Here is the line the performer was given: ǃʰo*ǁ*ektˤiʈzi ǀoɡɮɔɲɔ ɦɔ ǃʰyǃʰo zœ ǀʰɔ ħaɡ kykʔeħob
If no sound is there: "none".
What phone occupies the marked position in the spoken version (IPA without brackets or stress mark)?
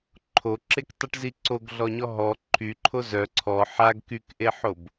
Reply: ǁ